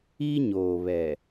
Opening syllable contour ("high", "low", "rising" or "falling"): high